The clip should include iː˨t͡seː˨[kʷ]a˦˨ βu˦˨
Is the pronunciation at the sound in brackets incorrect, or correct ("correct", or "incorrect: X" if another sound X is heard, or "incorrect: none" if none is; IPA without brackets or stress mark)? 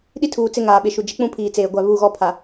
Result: incorrect: ɡʷ